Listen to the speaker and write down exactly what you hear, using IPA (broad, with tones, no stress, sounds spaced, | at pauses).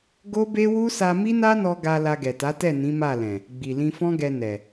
ɡ o˦ b e˦ w u˦ s a˧ m i˦ n a˦ n ɔ˧ ɡ a˧ l a˧ ɡ ɛ˨ t a˨˦ t ɛ˦˨ n ĩ˨˦ m a˦˨ l ɛ̃˨ | ɡ͡b i˨ l ĩ˧ f ɔ̃˦ ɡ ɛ˧ n ɛ˨